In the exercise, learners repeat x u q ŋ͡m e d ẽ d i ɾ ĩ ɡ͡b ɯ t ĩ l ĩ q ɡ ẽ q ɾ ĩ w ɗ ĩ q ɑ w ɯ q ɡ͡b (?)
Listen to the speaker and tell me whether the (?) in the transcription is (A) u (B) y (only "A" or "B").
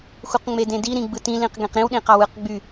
B